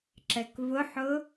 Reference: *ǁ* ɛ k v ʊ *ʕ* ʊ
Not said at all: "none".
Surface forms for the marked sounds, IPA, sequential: ǁ, ħ

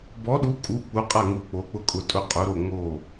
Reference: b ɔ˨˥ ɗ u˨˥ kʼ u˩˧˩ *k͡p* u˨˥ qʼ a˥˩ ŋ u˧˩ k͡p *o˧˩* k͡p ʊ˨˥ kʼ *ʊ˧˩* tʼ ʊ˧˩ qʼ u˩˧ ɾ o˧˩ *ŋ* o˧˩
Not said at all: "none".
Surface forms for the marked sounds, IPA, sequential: k͡p, o˩˧, ʊ˧˩, ŋ

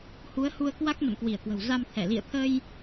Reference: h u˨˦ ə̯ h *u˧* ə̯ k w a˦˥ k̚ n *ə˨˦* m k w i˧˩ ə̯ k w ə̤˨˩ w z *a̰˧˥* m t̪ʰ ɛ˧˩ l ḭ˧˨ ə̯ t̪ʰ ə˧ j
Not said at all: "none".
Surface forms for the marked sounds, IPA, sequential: u˧, ə̰˧˨, a˧

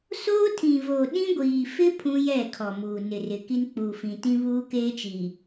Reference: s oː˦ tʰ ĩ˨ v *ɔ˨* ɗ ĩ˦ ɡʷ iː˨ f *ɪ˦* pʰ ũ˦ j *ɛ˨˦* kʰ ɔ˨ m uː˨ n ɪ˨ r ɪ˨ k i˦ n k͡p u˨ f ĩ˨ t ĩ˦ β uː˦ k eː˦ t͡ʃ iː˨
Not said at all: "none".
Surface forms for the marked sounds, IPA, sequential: o˨, ɪ˦, ɛ˦˨

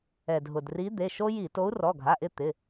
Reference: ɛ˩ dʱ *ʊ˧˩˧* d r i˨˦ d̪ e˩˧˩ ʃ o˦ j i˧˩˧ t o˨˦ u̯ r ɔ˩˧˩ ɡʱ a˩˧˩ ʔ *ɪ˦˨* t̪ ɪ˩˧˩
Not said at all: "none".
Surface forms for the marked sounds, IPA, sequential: ʊ˩, ɪ˦˨

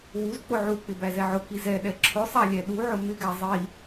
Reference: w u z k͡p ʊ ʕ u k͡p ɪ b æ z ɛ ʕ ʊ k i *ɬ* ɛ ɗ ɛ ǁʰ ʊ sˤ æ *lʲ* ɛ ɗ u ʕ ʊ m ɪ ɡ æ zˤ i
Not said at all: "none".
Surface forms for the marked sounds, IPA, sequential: z, lʲ

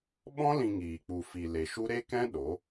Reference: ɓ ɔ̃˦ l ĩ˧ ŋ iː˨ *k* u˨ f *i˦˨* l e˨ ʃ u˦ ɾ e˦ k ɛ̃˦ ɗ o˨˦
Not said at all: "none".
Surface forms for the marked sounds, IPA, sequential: k͡p, i˨

